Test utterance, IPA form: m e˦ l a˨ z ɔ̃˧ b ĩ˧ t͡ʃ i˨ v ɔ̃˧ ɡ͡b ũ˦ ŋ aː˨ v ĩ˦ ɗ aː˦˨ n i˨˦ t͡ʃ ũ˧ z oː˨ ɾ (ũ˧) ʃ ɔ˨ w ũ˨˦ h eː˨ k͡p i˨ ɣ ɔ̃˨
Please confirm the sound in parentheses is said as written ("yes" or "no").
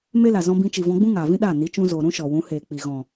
no